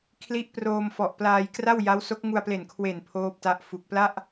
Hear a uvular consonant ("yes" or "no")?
no